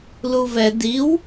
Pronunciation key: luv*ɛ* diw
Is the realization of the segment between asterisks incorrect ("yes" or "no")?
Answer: no